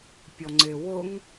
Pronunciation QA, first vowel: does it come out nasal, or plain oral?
oral